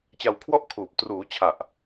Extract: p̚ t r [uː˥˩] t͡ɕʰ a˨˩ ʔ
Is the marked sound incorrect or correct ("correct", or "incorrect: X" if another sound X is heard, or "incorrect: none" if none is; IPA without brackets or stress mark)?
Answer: incorrect: uː˩˦